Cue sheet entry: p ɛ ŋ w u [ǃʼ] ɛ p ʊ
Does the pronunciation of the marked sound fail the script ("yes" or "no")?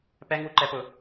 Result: yes